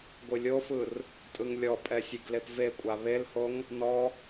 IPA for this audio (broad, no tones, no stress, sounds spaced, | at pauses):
ɡʷ ɯ lʲ o f ɯ r | tʼ ɯ ŋ lʲ ɔ pʼ ɛ sʲ e ɡ l e p v e kʷʼ a β e l h o ŋ | n ɔ